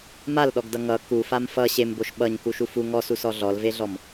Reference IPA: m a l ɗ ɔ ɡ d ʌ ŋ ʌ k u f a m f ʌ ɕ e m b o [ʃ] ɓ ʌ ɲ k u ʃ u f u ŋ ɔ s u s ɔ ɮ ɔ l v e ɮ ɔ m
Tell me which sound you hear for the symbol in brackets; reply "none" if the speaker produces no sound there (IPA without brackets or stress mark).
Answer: ʃ